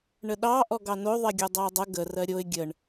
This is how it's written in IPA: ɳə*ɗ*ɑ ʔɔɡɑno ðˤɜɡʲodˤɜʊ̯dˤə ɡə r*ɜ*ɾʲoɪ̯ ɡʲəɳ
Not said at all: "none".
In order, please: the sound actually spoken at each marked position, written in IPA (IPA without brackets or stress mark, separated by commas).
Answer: ɗ, ɜ